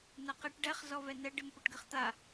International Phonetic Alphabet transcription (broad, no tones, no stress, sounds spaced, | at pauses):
n a q ɪ ʈ ɖ ɛ χ z ɔ v ɛ n ɛ ɖ ɪ m p ʊ ʈ ɡ ɪ χ t̪ a